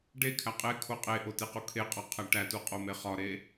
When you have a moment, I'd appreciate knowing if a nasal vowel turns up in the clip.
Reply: no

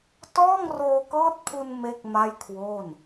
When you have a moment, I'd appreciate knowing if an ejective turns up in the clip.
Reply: no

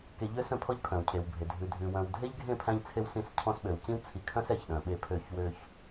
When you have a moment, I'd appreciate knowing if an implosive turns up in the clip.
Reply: yes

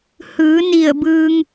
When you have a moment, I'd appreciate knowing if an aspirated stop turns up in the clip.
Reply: no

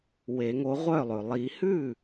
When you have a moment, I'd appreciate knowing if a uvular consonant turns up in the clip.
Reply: yes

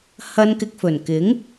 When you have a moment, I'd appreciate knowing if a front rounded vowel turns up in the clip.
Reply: no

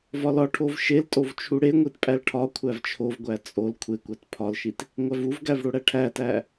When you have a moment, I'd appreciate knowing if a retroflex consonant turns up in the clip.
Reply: yes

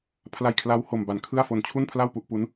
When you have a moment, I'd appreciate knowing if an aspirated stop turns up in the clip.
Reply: yes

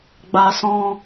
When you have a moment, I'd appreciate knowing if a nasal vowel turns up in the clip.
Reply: yes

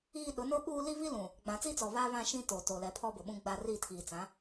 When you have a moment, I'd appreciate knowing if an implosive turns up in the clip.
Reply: yes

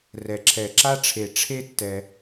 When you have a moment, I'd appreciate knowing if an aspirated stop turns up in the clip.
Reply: yes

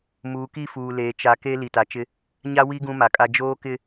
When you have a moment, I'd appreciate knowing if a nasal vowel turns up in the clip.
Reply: yes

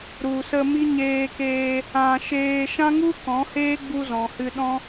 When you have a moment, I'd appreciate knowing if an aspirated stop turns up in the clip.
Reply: no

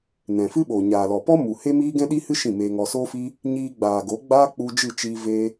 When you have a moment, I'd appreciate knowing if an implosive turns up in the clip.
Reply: yes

